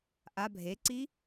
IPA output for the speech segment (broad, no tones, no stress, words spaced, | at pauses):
ʔa bʱeǀi